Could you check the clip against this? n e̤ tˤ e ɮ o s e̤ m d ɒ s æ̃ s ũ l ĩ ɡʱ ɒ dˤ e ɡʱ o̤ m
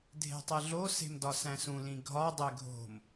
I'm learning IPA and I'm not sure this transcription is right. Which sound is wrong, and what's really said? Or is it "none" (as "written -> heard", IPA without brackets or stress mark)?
n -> dʱ